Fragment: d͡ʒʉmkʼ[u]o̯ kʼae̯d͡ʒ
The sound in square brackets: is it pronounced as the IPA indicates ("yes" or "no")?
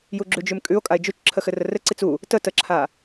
no